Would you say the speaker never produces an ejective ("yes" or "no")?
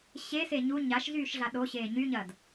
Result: yes